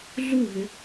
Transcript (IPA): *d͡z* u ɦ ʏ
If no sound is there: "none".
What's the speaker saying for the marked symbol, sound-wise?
ɮ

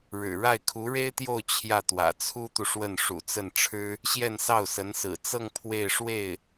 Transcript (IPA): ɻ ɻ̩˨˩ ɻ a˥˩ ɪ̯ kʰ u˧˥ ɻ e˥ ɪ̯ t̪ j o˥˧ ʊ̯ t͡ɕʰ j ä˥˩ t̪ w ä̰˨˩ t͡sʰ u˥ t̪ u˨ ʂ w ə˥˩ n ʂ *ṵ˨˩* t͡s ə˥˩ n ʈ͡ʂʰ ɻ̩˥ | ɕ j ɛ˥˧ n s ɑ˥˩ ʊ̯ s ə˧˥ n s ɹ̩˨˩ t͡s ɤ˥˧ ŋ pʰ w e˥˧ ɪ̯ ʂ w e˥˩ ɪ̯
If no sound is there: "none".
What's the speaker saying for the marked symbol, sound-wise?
ṵ˨˩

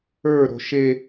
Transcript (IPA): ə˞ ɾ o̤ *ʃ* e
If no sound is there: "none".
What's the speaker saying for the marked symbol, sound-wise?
ʃ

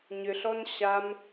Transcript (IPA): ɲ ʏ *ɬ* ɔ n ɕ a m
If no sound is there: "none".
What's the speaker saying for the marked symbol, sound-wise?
ɬ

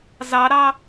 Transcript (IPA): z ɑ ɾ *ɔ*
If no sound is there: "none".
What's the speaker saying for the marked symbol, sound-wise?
ɑ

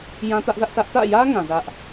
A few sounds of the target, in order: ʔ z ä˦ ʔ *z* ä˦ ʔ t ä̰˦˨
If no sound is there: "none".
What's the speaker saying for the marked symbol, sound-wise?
s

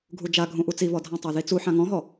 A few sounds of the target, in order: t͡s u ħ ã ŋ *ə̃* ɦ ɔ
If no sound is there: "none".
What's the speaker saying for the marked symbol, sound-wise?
ɔ̃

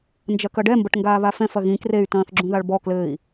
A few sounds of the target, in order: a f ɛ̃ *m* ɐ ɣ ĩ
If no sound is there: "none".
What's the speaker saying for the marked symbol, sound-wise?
f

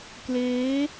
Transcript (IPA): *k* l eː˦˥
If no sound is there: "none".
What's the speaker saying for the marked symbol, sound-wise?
k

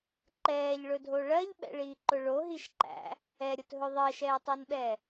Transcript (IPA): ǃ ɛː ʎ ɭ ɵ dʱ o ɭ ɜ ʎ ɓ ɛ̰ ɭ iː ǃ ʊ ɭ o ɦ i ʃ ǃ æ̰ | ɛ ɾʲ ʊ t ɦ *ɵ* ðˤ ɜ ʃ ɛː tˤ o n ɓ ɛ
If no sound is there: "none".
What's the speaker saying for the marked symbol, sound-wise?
ɵ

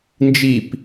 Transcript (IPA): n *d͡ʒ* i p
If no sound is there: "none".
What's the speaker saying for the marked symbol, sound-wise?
d͡ʒ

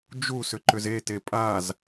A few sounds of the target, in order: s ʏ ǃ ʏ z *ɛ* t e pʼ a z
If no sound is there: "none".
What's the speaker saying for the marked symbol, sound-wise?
e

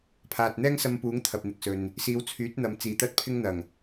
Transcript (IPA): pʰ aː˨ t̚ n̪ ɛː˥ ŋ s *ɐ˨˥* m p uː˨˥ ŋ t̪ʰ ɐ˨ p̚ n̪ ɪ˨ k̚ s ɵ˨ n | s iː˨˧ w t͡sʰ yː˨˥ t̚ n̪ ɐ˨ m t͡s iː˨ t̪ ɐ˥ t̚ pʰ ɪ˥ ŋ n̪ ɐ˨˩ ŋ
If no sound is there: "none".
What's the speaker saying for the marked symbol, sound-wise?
ɐ˧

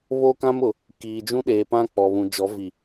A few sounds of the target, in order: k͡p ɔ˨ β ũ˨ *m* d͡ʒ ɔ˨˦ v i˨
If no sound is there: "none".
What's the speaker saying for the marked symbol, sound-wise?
none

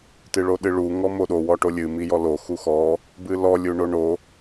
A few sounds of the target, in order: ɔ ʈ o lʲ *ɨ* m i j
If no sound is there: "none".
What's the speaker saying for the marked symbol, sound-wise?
ɨ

